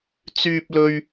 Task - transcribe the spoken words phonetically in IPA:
t͡syː˥p̚lɵ˥ɥ

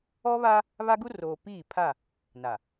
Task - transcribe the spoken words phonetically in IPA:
ɔ˦βa˦ | βa˦ɡu˦roː˨ piː˦˨pʰa˦˨ | na˨

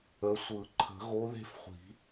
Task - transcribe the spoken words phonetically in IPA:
ə˨˦sʷɯ˨˩˦ ǃʰə̤˨˩˦ɣo˨˦ ðe̤˥˧fχʷi̤˨˩˦

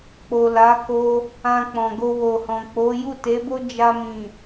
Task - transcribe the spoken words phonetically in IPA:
k͡po˨ la˨˦ko˧ | ã˧k͡pɔ̃˨ɡo˧ wo˨hɔ̃˨k͡po˨˦ ju˦˨te˨˦bo˦ d͡ʒa˧mĩ˨

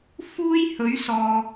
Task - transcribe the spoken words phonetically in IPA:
fuː˥j hɵ˨˥ɥsɔː˨

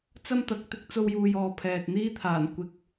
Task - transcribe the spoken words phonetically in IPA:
t͡sɐ˥mt̪ɐ˨k̚t̪ɪ˥k̚ t͡so˧wjuː˨jɔː˨ pʰɛː˨t̚n̪iː˥t̪ʰaː˨˩n kʷɪ˨k̚

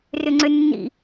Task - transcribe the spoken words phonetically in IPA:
rʏŋ͡ǀʏnːḭ

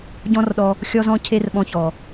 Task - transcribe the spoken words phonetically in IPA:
ɟɔ̃˦rɗɔ˧ | xʲɔ˦zɔ̃˦cʰe˦rɓɔ̃˧ çɔ˨

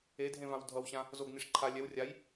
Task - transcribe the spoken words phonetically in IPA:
edʱẽvãw dʱʌwɕã | zoɡniʂ ǃʰa lʲɛw rʲaj

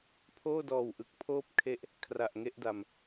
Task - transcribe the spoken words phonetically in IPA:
pʰoː˥˩dɔː˨˩wʔɯ˨˩k̚ pʰoː˥˩p̚kʰe˦˥ʔ | kʰra˨˩ʔŋe˥˩ʔda˨˩m

